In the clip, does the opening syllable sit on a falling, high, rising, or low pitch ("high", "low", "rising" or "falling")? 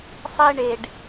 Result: high